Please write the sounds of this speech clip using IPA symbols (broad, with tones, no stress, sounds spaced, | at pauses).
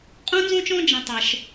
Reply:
qʼ ũ˥ n z õ˥ t͡ʃ ɔ̃˥ d͡ʒ ɐ̃˥ tˤ ɐ˦ ʃ